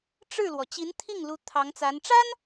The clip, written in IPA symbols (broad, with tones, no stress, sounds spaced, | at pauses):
ʈ͡ʂ ɻ̩˥˩ l w ɔ˩ t͡ɕ i˧˥ n t̪ʰ i˥˩ ŋ l u˥ t̪ʰ ɑ˧˥ ŋ t͡s a˧˥ n ʈ͡ʂ a˥ n